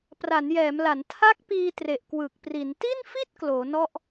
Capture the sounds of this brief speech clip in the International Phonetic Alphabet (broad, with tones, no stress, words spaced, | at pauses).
pra˩˦njɛː˩˦mla˩˦n tʰa˦˥k̚piː˧ tre˨˩ʔkwɯː˨˩k̚pri˩˦n ti˥˩nfi˥˩t̚ kloː˩˦nɔ˥˩ʔ